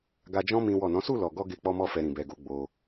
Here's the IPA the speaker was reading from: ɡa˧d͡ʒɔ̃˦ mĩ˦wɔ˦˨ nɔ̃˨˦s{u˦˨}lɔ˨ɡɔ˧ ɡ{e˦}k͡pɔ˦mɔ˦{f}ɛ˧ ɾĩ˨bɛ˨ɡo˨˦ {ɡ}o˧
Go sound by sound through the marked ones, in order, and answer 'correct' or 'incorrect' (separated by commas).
correct, correct, correct, incorrect